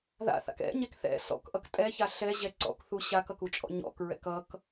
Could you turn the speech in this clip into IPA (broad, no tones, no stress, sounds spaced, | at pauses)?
ð a̰ θ a̰ k ɛ̰ ɲ ɛ k θ ɛ̰ s ɔ̰ k ʔ ʌ k tʼ ɛ ç a ɬ ɛ ʑ ɛ ǀ ɔ̰ k θ u ɕ a k ʌ k u t͡ʃʼ ɔ̰ ɲ ɔ̰ k ɹ ɛ̰ k ʌ k